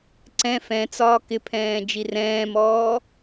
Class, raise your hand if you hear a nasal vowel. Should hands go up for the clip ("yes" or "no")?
yes